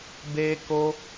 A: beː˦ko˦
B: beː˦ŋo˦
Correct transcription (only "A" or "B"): A